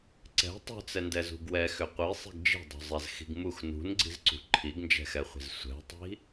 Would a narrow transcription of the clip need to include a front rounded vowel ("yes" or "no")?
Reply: yes